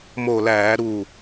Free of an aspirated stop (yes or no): yes